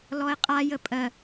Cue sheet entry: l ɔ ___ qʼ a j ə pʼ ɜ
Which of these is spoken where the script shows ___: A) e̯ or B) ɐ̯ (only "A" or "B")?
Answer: A